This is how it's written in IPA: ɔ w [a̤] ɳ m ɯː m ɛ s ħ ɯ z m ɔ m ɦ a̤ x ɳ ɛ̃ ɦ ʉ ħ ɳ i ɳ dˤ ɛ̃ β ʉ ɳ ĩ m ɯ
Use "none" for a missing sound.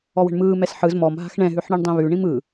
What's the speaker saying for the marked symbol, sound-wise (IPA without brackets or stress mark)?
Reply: ə̤